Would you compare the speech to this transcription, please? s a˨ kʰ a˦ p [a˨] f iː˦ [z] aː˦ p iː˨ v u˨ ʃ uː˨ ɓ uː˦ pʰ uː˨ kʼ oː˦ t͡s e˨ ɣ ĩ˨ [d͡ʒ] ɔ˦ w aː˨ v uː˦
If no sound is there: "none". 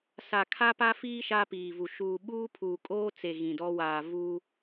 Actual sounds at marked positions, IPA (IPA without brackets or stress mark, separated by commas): a˦, ʃ, d